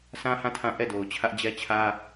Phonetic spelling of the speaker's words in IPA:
sʰ ã˦ h ã˦˨ tʰ ã˦˨ ʔ ɛ˦˨ d o˨ ʊ̯ t͡ɕʰ ä˦ ʔ d͡ʑ ɛ˦ t͡ɕʰ ä˦

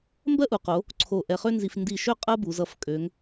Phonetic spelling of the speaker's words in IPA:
m b ɜ˥ ʔ u˩˧ q o˩˧ | ǀʰ o˧˩ ʔ ɛ˧ χ ø˥ n z i˧ f n d i˧˩ ʃ ø˥˧ qʼ ɜ˥ b u˩˧ z ʌ˧˩ f kʼ ø˩˧ ŋ

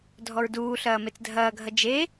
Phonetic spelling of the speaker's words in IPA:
dʱ ɔ ɹ d uː ɬ ɐː m e t͡s dʱ ɐː ɡʱ ɐ d͡ʒ e

